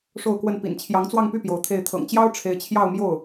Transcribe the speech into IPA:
ʂ o˥˧ ʊ̯ k w ə˥˩ n p ḭ˨˩ n t͡ɕʰ j ɑ˧˥ ŋ t͡s w ɑ˥˧ ŋ p y˥˩ p j o˧˥ ʊ̯ t̪ʰ e˥˩ ɪ̯ t̪ʰ ɤ̰˨˩ ŋ t͡ɕ j ɑ˥ ʊ̯ ʈ͡ʂʰ e˧˥ ɪ̯ t͡ɕʰ j ɑ˥˧ ʊ̯ m j o˥˩ ʊ̯

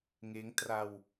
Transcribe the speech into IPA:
ŋ eː˦˥ ŋ t r a˧ w

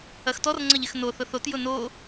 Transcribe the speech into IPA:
ɐ x t ɔ r ŋ͡ǀ ɐ ʎ ɪ x n o θ ʊ θ o t j ʊ n o

